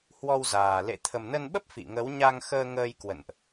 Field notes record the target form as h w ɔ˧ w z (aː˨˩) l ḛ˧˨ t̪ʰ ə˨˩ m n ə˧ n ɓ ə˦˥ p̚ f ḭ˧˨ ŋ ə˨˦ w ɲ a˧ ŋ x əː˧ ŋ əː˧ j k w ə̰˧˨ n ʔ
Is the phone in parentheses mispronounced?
no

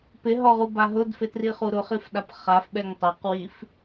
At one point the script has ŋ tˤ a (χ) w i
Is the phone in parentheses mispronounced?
yes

